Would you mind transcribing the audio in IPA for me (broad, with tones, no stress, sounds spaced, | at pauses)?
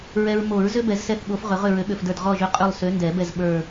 ɹ ɛ˨ ɹ m o˨˩˦ ɹ z ʏ˦ b ɛ˨˩˦ z s ɛ˦˨ θ ɠ o˨˦ f ʁ ʏ˨˩˦ ʁ ʏ˦˨ ɹ ø˨˦ ɠ ø˨ f d ə˞˦˨ d ʁ ɔ˦˨ ʒ ø˦ qʼ ø˦˨ lˠ s ø˨˦ n d ɛ˨˩˦ b ɛ˦˨ z ɓ ə˞˦˨